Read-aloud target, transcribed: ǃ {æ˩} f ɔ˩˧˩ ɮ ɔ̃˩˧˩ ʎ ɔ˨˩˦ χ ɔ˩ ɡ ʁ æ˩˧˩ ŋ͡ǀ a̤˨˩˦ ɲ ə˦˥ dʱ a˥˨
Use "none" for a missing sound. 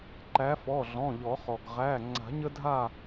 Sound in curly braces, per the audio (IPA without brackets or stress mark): æ˨˦